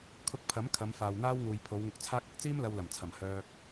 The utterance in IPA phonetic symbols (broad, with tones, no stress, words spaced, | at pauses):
kʰʊ˧k̚pʰɐ˨˥m kʰɐ˨˧mfaː˨wn̪aː˥wŋuː˨j pʰo˨˧wŋʊ˧k̚t͡sʰaː˥k̚ ɐ˨k̚t͡siː˥m lɐ˧wlɐ˨˩mt͡sʰɐ˨˩m hœː˧k̚